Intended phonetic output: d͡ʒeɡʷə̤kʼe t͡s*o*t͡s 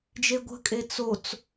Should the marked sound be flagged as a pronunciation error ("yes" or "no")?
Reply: no